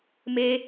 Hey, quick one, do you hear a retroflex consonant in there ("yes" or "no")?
no